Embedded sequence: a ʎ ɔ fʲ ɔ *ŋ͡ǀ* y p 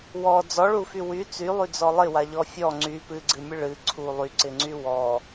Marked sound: correct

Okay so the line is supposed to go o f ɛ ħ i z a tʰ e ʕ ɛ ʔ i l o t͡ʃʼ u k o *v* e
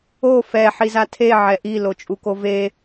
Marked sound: correct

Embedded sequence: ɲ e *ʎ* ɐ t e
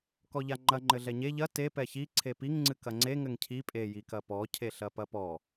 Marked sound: correct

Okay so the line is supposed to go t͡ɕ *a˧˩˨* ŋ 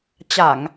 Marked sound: correct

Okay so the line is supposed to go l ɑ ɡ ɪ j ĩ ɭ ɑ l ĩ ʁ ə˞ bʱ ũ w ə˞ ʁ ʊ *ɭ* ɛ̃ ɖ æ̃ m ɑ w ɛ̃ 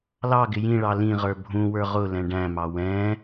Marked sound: incorrect: l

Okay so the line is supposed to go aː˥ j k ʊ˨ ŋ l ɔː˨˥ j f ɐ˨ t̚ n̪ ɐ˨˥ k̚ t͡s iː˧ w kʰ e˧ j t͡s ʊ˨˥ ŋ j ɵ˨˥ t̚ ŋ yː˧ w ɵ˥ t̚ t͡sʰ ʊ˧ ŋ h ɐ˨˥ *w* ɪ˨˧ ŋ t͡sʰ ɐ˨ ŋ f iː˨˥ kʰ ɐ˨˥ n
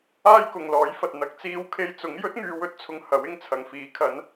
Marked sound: correct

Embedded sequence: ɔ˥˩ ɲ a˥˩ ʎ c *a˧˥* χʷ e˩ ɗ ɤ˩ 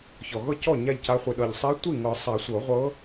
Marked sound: correct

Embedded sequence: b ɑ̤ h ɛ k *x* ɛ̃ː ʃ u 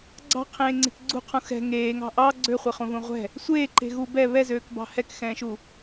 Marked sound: correct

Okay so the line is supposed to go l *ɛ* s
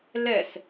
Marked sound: correct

